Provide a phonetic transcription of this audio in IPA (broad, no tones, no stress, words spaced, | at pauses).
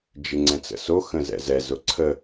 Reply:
d͡ʒɪŋ͡ǀɛ̃t͡sə̰so xə̃zɛ̰zɛ zʊǀʰə